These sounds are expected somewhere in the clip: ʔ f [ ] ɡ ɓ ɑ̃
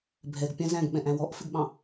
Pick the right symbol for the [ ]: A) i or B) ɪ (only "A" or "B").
B